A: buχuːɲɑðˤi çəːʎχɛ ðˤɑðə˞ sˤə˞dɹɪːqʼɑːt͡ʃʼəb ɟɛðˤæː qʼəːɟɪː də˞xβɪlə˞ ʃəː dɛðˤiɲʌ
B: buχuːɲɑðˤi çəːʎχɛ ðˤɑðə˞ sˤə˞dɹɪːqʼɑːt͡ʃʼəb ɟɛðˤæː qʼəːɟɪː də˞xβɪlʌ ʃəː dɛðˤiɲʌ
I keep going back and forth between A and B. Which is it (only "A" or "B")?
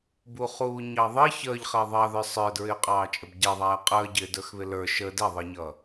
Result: A